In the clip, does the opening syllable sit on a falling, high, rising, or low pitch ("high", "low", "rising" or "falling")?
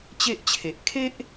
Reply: high